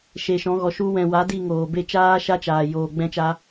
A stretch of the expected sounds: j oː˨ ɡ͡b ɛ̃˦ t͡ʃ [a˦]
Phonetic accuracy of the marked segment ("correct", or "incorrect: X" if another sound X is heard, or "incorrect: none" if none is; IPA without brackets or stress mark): correct